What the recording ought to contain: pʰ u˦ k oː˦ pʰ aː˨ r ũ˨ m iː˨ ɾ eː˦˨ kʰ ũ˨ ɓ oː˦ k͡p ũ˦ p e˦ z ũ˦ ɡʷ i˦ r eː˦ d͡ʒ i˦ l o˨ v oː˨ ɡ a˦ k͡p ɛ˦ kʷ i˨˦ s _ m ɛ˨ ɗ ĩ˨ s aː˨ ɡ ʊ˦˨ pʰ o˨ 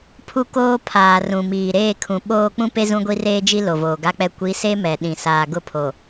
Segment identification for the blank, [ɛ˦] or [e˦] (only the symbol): e˦